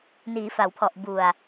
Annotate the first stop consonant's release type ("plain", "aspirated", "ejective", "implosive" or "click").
aspirated